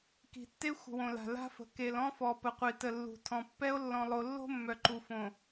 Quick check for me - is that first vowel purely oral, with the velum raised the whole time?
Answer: yes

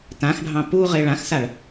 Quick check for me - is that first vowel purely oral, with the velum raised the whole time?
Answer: no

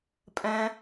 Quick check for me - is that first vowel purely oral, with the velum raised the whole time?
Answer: no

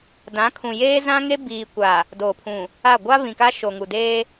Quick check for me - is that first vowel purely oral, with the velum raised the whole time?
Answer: no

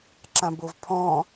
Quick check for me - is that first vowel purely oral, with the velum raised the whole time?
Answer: no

